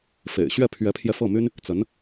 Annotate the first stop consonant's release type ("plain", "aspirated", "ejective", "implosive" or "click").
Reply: aspirated